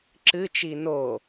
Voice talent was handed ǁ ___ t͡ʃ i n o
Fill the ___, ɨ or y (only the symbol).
ɨ